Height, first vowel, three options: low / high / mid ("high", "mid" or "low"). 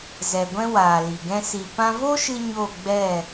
mid